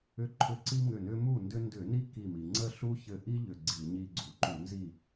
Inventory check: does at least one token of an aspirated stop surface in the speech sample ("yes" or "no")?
yes